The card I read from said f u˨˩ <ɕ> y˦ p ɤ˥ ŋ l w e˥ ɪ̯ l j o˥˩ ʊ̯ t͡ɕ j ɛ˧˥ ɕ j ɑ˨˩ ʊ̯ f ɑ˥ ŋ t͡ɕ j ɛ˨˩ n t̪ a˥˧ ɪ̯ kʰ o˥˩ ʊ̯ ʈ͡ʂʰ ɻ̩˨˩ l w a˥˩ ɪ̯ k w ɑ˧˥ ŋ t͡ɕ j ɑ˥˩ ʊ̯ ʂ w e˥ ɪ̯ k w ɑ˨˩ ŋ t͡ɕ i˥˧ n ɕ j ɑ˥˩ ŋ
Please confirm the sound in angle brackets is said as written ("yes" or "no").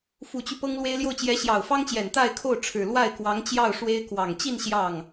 no